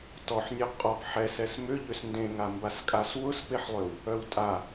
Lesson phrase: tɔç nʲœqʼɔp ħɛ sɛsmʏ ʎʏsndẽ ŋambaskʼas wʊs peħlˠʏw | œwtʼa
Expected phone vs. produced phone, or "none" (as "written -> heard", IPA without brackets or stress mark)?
ç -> ħ